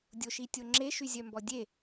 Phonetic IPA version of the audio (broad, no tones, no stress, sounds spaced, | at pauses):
dʲ o ʃ i tʲ o ŋ͡ǁ e ʃ y zʲ œ m b ɔ dʲ e